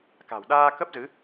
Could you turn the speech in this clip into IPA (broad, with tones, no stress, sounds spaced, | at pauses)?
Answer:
k a̤˨˩ w ɗ aː˧ k ə˦˥ p̚ z ɨ˨˦